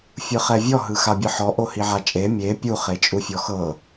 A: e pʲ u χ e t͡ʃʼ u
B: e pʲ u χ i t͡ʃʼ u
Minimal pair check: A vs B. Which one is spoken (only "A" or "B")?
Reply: A